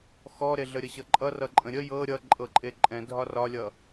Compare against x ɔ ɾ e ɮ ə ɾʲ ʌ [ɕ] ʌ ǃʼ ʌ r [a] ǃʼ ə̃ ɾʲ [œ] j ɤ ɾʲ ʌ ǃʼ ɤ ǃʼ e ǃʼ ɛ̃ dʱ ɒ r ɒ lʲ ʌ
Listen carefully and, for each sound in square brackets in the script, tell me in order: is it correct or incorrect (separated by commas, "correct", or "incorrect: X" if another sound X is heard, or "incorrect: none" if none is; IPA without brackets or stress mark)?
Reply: correct, incorrect: ʌ, incorrect: ə